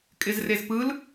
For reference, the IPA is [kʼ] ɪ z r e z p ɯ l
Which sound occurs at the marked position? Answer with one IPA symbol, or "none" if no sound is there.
kʼ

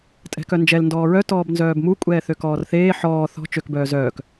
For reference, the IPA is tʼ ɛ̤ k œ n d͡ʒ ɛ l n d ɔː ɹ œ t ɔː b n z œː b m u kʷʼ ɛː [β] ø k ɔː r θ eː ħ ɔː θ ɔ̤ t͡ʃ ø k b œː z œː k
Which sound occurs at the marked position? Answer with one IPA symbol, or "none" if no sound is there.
θ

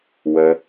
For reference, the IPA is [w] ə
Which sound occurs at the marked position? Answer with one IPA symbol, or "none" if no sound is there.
w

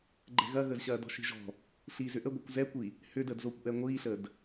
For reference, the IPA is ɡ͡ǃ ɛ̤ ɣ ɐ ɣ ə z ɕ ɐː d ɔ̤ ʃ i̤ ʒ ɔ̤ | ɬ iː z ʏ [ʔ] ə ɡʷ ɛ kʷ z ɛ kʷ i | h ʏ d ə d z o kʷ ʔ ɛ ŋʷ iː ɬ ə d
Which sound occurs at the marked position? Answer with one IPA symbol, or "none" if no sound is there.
ʔ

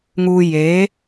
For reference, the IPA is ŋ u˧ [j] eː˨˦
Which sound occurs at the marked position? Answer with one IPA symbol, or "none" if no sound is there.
j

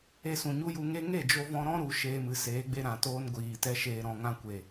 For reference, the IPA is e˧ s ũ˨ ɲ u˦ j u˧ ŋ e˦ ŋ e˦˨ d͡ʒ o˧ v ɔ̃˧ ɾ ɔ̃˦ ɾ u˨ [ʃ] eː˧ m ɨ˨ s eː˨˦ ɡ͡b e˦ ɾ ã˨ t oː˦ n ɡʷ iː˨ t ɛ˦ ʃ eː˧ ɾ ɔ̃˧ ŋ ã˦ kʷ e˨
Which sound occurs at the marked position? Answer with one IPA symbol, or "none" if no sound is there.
ʃ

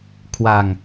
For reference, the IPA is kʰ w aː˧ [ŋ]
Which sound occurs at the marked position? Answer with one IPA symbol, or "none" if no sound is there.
ŋ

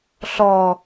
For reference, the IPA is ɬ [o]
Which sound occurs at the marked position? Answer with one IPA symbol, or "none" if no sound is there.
ɔ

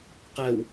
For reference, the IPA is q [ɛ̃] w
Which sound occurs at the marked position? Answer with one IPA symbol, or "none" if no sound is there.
ɛ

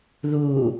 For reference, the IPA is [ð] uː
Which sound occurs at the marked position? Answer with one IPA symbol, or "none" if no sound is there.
ð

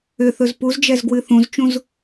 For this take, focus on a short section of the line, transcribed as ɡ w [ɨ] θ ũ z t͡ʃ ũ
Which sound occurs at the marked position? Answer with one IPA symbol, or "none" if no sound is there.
ɨ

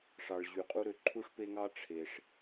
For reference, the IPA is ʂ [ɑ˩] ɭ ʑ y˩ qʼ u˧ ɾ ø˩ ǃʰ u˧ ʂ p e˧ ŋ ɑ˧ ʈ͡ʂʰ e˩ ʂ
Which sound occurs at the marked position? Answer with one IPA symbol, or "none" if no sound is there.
ɑ˩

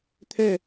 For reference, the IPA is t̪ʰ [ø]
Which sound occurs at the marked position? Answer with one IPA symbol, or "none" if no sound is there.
œ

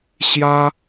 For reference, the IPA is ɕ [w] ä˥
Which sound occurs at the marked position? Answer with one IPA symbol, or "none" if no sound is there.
j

